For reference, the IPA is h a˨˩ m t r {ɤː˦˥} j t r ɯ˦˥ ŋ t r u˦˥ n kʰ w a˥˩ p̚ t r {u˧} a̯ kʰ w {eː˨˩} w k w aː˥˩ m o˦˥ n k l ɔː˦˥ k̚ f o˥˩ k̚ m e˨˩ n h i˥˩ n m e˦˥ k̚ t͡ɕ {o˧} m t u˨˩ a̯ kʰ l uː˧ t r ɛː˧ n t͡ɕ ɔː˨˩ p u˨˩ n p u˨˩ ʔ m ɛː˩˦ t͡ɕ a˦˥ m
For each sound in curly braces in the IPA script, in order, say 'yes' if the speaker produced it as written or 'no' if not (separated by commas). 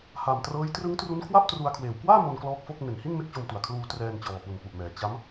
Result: yes, yes, yes, yes